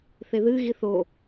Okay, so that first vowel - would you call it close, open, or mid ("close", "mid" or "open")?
mid